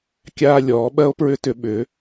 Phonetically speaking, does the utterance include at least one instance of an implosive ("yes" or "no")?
yes